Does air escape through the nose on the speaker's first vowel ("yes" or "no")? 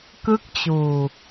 no